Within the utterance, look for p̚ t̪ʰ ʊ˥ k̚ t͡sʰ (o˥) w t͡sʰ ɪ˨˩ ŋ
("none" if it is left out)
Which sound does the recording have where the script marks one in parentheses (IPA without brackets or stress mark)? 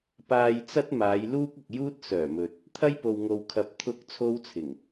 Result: o˥